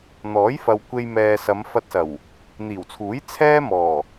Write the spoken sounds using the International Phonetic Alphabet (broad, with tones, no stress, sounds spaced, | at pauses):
n̪ ɔː˨˥ j f ɐ˨ w kʷ e˧ j m ɛː˨ s ɐ˨˧ m f ɐ˧ t̚ s ɐ˨˩ w | n̪ iː˨˩ w t͡sʰ uː˨˥ j t͡sʰ ɛː˥ m ɔː˨˩